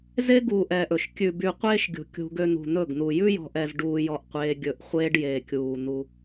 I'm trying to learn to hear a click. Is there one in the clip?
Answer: no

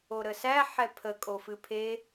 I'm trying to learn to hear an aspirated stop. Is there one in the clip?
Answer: yes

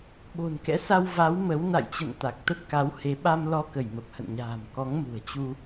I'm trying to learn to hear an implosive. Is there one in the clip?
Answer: yes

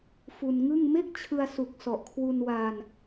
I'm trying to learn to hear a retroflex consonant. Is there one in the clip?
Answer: no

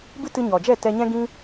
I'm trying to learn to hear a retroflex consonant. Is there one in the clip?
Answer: no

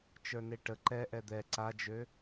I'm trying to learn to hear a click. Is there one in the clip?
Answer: yes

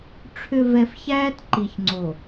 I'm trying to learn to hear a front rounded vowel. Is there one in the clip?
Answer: yes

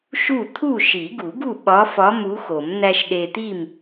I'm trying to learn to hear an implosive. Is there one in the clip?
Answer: yes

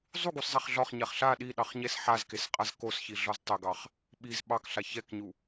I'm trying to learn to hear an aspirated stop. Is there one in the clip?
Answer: no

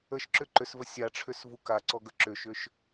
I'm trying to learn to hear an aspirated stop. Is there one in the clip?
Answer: yes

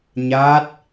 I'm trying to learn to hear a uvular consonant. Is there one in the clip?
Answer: no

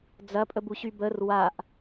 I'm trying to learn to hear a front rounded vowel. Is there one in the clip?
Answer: yes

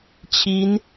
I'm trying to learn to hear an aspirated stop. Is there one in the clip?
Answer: yes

